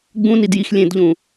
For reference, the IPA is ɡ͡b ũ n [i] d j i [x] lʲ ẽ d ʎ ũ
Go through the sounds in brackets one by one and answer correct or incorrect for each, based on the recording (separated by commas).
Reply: correct, correct